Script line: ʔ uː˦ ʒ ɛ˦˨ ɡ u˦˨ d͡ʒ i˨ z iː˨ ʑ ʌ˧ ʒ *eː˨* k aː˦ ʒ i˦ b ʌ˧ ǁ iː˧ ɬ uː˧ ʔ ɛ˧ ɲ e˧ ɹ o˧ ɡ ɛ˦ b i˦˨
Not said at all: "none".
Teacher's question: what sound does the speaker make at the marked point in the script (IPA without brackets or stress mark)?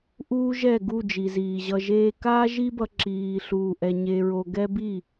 eː˦